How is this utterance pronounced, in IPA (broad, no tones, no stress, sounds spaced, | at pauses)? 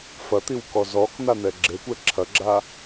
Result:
f ɐ t̪ i w k ɔ z ɔ k n̪ a n̪ ɛ ɡ͡ǁ e kʷ ɛ ǁʰ ɐ ɡ͡ǁ a